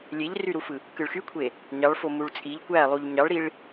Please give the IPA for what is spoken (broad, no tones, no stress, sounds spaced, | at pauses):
lʲ e ʎ r y ɾ u f ɯ | k ɯ ɭ x y kʷʰ e | ɲ ɑ ɭ f o m u ɭ t͡sʼ i ʎ kʷ æ lˠ u ʎ ɲ ɑ ɭ ɾ i ɭ